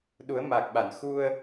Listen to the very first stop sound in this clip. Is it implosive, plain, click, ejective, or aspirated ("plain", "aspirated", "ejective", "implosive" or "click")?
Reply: implosive